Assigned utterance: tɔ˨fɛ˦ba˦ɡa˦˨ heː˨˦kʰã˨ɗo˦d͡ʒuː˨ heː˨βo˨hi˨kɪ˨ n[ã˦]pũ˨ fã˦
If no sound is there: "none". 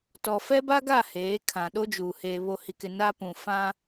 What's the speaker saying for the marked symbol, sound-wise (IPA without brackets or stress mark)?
a˦